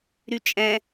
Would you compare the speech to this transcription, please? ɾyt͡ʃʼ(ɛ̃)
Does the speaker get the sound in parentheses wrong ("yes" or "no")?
no